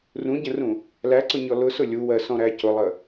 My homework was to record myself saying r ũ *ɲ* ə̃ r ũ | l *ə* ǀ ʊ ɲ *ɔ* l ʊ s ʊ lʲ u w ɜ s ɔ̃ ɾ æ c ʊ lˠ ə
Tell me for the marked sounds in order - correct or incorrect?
incorrect: ɟ, incorrect: æ, correct

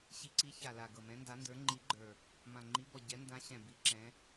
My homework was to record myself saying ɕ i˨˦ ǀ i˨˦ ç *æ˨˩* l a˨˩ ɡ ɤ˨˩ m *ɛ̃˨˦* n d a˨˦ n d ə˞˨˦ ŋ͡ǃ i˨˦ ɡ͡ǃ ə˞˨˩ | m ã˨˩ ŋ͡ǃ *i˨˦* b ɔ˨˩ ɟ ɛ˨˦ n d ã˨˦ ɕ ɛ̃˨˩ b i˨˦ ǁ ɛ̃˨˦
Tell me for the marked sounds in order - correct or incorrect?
incorrect: a˨˩, correct, correct

